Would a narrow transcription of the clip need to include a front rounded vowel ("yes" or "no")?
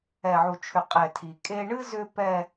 yes